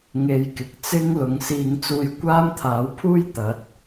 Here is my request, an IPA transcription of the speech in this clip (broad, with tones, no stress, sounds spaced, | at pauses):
ŋ e˧ j k ɪ˨ k̚ t͡s ɪ˥ ŋ l ʊ˨˧ ŋ s iː˧ ŋ t͡s uː˧ j kʷ aː˥ m t̪ʰ aː˨˥ w pʰ uː˥ j t̪ ɐ˨˥ t̚